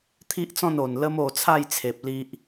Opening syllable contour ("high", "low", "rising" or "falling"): high